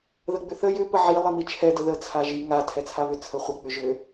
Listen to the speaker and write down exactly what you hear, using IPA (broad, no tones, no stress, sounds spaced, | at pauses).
ð ə ɡ͡b ʏ θ ə j ʏ p ə ʕ i lˠ i m i t͡ʃʰ ɛ d ə ð ə t͡sʰ a ʒ i ŋ a tʰ ɛ t͡sʰ a β ʏ t͡sʰ ə χʷ ə k͡p ʏ ʒ ʏ